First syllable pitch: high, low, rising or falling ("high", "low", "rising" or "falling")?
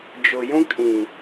low